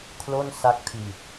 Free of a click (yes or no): yes